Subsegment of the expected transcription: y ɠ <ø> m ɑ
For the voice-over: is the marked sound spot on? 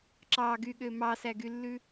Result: yes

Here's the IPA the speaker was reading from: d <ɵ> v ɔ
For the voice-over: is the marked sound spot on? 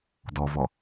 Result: no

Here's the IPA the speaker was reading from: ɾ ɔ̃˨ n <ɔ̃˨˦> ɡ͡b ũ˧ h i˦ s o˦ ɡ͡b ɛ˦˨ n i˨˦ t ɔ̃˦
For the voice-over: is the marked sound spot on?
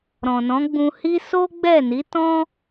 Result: yes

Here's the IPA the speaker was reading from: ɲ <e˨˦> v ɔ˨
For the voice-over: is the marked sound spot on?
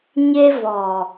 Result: no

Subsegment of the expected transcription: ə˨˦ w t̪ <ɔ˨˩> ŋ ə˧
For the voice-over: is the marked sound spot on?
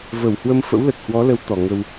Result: yes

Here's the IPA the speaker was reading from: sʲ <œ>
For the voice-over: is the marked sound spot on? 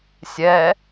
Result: no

